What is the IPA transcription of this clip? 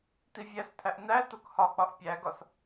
t̪ivʲæst̪ʰæʔ n̪æt̪ok hɒk͡pɒʔ pʲæɡɒs

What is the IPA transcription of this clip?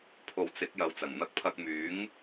pʰo˨wt͡sɪ˨˥k̚ jɐ˨˧wt͡sɐ˨˩ŋn̪ɐ˧k̚pʰɐ˧k̚ myː˨˥ŋ

